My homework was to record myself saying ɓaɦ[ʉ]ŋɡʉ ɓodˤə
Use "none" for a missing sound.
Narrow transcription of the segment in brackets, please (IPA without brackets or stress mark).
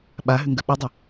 ʉ